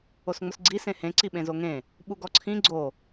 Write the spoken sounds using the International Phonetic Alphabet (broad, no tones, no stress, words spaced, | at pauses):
osŋ͡mʊsɡ͡ǀi sẽhẽ ǀiɓẽzoŋẽ | ɓuɡɔǀʰĩ ɡ͡ǀo